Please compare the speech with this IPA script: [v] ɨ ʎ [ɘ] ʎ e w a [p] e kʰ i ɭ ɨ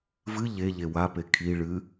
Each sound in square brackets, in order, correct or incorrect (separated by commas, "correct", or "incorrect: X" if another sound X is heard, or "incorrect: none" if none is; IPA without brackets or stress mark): correct, incorrect: e, correct